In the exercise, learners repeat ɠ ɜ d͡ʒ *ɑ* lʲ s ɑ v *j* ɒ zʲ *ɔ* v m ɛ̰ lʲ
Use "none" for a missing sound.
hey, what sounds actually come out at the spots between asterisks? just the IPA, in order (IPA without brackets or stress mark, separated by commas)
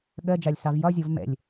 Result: ɑ, j, ɔ